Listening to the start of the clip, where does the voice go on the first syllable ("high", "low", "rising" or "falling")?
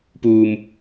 high